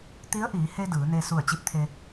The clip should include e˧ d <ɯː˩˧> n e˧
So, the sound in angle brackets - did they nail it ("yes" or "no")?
yes